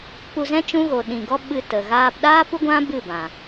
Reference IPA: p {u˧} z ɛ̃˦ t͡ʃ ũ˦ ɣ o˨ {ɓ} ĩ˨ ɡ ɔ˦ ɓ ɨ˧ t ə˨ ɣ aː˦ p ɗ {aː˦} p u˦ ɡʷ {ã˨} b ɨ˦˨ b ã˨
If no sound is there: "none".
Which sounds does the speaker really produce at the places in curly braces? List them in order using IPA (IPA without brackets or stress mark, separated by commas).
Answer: u˧, ɗ, aː˦, ã˦